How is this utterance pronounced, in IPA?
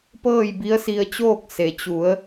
pɤː˥˨jbi˧˥ə̯si˧ə̯t͡ɕoː˥˨k̚ se˩t͡ɕu˩˧ə̯

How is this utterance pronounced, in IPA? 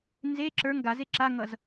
nze ǁə˞ŋ ɡaze ǁaŋʌz

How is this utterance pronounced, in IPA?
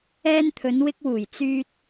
ɛː˧nt̪ʰɵ˨˧nwɪ˧k̚wuː˨˩j t͡syː˧t̚

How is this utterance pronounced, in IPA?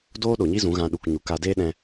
doː˦ɗo˨ɲi˦ zũ˨˦ɣã˧ ɗu˨k ɲu˨ka˧deː˦ɗɛ̃˧

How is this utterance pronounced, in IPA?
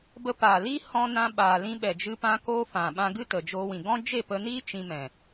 bə˧ paː˨li˦ hɔ̃˧nã˧ ɓaː˨lĩ˧ɓɛ˨d͡ʒɨ˧ pã˧koː˧ fã˨ɓã˧ ɡɨ˦tə˨d͡ʒoː˧wĩ˨ ɡɔ̃˦ d͡ʒe˦˨pə˧niː˦ t͡ʃĩ˧ mɛ̃˨

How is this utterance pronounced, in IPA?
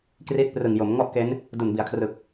kri˦˥t̚prɯ˨˩ŋ jo˩˦mŋɔ˥˩ʔke˦˥n | du˨˩nbi˩˦a̯kʰrɯ˨˩k̚

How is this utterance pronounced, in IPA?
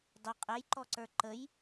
dˤʊ qʼɛjǃɔǀə˞ ǃəj

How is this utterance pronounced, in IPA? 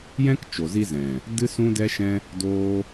jɛ̃˦kt͡ʃo˨zi˧ zɛ̃˨ | dɨ˦sũ˦dɛ˦ʃɛ̃˦ | doː˦

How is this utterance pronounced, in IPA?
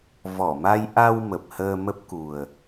vɔ˧˩ma˧j ʔa˧w mə˨˩p̚həː˧mə˦˥p̚ku˨˩ə̯

